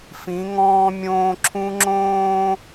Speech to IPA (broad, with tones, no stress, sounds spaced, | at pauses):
f ĩ˨˦ ŋ ɔ̃ː˦ mʲ õː˦ ǁʰ ũ˦ ŋ͡ǁ õː˦